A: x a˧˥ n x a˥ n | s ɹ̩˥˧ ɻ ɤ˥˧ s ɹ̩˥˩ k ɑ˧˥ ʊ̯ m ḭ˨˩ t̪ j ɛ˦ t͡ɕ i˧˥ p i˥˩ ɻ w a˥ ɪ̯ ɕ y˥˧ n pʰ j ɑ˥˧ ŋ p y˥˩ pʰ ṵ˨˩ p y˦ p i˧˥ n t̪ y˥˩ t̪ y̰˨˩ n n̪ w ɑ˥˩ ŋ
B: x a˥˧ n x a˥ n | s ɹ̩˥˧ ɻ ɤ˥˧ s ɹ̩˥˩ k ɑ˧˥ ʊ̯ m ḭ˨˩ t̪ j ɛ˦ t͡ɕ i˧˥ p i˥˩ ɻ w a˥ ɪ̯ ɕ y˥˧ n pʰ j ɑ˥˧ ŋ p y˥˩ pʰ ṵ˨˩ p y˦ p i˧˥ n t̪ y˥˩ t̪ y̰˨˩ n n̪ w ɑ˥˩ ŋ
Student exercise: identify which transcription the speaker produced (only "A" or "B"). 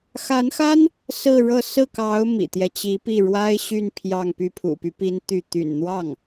A